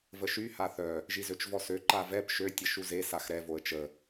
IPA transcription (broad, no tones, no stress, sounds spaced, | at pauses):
v ə ʃ y h a θ œ | ʒ i z ø t͡ʃ v ɔ s ø ǃ a v ɛ p ʃ ø tʲ ə ʃ u z e s a x ɾ ɛ v o ə̯ t͡ʃ ə